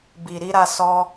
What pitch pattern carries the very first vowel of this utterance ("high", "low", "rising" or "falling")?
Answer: low